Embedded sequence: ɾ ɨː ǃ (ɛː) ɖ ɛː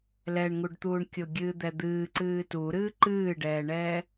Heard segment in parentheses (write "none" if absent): ɨː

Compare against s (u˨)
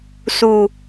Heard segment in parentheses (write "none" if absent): u˨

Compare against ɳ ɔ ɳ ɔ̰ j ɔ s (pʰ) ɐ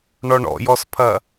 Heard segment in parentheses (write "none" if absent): pʰ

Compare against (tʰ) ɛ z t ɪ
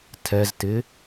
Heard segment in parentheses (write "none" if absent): tʰ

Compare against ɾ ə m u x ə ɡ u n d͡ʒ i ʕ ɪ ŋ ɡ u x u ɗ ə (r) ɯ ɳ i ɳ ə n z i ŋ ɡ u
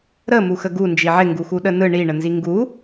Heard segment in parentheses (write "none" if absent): n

